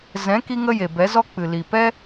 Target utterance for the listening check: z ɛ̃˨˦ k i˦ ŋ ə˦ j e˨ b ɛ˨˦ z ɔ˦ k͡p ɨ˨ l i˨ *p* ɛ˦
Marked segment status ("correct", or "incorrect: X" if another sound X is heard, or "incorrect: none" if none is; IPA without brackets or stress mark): correct